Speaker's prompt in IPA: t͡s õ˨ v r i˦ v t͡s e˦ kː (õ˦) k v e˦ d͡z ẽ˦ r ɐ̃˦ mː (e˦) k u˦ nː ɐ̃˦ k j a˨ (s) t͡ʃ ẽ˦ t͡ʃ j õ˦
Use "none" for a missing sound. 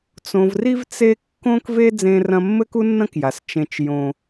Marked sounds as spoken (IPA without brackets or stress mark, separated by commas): õ˦, ɘ˦, s